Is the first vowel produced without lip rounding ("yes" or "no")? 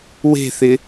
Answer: yes